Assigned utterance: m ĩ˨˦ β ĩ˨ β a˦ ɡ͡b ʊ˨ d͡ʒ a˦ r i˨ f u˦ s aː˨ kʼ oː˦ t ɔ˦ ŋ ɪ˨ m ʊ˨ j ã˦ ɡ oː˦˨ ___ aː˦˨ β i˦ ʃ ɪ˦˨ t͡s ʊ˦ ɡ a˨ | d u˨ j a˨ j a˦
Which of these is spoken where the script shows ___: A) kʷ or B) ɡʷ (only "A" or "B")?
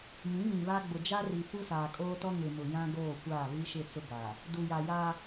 A